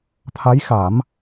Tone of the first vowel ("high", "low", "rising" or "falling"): rising